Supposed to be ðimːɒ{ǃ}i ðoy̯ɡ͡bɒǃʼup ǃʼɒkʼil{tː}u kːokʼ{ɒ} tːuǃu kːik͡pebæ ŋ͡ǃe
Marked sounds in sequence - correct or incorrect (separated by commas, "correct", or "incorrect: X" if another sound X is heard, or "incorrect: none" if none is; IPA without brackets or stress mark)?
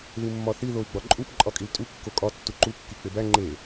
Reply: incorrect: θ, incorrect: tʼ, correct